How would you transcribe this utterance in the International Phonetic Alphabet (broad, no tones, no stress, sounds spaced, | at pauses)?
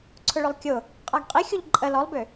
ǀʰ ʊ ɭ ʏ lˠ kʲ ʊ | qʼ a ɡ qʼ i xʲ u ʎ ǃʼ ə l ɔ lˠ b ʏ